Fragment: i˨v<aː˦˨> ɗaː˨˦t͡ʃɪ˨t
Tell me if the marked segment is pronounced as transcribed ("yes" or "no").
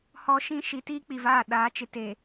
yes